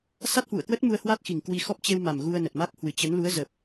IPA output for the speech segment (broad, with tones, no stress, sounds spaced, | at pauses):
s a˦˥ t̚ h w ṵ˧˨ ə̯ k w ə˦˥ t̚ m u˧ ə̯ h w a˦˥ t̚ x i˨˩ ŋ k w i˧ x ɔ˦˥ p̚ t͡ɕ e˧ w m a˨˩ m ɣ u˧ ə̯ n ə˨˩ t̚ m a˦˥ k̚ h w ɨ˨˩ t͡ɕ ə˨˦ n l u˨˦ ə̯ z ə˨˩ p̚